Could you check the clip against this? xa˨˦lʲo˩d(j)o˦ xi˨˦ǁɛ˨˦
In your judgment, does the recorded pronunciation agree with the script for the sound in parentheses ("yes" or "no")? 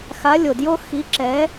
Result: yes